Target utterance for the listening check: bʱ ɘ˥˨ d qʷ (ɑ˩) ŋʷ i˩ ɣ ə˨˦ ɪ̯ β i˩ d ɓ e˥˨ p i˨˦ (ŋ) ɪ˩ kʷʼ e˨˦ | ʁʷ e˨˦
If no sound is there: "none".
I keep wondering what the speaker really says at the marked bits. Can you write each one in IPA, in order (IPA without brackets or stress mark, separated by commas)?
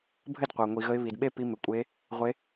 ɑ˩, m